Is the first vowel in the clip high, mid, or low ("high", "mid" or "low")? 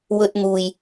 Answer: mid